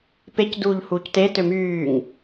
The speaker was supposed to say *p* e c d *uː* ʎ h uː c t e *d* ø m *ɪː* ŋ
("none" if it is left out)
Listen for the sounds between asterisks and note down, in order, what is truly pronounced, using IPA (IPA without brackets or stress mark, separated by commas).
p, uː, t, yː